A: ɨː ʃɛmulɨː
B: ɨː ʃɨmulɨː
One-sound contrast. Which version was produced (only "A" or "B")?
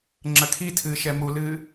A